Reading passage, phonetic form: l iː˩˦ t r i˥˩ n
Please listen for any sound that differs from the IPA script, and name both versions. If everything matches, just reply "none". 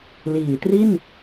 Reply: none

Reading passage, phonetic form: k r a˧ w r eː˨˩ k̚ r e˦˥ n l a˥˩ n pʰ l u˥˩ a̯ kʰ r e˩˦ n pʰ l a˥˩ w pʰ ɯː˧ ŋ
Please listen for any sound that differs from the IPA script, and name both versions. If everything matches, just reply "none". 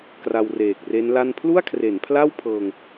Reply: ɯː˧ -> ɤː˧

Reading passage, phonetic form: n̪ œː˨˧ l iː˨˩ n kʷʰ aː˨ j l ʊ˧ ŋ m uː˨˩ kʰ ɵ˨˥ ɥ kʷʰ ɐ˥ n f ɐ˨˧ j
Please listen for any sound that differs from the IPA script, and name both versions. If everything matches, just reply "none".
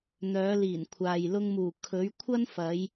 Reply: none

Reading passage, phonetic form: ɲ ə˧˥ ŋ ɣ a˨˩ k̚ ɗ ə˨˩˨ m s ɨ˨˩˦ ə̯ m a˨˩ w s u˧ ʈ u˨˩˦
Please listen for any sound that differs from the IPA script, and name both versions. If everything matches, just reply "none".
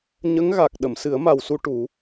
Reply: none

